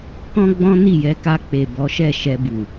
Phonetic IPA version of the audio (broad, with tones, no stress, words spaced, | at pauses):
kɔ̃˦ɡ͡bɔ̃˦ni˦˨ jɛ˧ka˧ k͡pe˨bɔ˨˦ʃɛ˦˨ ʃɛ˧bu˨